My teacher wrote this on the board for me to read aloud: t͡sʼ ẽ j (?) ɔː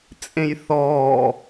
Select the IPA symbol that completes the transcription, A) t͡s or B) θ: B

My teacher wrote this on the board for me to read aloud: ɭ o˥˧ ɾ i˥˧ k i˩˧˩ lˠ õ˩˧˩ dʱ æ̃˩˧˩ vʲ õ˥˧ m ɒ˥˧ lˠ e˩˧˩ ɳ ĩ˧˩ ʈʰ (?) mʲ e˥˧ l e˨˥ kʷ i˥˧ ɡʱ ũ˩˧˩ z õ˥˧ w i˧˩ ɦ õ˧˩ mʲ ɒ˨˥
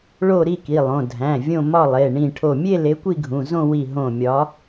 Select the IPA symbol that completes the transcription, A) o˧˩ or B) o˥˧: A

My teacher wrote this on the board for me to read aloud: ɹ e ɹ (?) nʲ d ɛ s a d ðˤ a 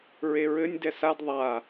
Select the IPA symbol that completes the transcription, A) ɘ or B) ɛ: A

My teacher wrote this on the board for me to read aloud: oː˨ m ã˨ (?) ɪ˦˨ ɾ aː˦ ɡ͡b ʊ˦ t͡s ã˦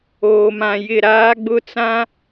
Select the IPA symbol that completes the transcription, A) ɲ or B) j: B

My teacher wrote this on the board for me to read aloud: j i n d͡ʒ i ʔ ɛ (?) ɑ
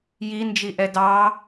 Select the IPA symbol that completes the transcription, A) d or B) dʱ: A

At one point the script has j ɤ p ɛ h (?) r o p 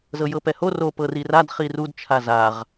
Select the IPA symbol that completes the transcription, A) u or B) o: B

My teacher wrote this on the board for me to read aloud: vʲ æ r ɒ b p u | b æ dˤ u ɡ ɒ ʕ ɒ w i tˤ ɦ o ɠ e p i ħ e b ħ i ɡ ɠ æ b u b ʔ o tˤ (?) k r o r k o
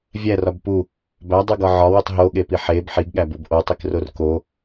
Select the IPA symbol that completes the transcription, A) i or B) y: A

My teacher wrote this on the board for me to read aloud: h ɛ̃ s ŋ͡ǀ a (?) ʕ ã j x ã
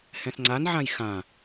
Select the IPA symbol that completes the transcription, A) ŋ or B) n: B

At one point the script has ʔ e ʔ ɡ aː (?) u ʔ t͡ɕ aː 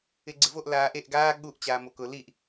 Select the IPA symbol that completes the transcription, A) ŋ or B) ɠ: B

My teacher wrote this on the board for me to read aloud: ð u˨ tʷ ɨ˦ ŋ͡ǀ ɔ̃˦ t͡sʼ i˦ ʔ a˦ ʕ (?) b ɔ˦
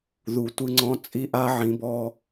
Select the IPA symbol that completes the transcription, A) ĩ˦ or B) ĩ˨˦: B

